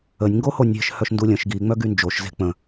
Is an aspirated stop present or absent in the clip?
absent